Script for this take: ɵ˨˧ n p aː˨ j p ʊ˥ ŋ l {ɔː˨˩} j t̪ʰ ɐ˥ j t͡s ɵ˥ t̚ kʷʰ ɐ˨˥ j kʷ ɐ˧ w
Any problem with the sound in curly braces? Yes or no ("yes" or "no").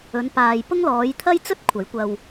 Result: yes